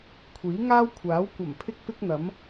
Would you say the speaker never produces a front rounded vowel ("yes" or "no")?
yes